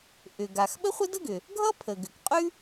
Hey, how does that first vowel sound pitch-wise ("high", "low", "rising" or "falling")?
low